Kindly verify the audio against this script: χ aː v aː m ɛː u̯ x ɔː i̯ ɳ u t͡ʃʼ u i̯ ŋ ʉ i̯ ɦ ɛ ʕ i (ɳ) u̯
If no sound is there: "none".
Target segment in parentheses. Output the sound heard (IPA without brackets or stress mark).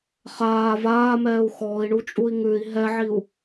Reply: none